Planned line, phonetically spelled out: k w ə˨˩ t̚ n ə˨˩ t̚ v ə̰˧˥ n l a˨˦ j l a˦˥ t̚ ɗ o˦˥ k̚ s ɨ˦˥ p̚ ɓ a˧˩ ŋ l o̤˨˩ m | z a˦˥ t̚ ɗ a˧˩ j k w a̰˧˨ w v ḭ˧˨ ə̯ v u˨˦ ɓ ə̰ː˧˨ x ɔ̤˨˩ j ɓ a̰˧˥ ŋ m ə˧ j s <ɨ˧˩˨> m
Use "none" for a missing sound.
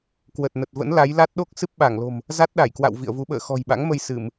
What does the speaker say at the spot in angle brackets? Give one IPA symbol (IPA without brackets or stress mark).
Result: ɨ˧˩˨